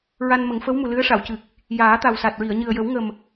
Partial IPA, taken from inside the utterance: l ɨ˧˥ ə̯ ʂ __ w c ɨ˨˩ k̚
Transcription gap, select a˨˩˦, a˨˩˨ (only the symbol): a˨˩˨